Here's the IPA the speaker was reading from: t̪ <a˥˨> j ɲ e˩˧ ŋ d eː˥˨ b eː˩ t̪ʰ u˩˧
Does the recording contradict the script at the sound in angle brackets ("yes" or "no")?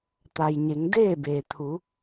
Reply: yes